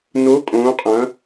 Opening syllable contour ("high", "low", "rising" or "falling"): rising